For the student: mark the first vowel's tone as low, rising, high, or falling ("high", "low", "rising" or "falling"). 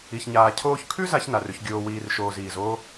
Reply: low